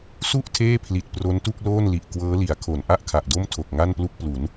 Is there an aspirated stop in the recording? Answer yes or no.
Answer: yes